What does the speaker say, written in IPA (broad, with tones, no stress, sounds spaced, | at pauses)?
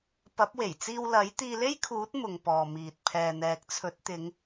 p ɐ˨˥ p̚ w e˨˩ j t͡s iː˧ w l ɐ˨˥ j t̪ iː˧ l e˥ j kʰ uː˨˥ t̚ m ʊ˨ ŋ p ɔː˨ m iː˨ t̚ pʰ ɛː˨ n̪ ɛː˨ k̚ t͡sʰ ɵ˨˥ t̚ t̪ ɪ˨˧ ŋ